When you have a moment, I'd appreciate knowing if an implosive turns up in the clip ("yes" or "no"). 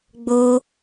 no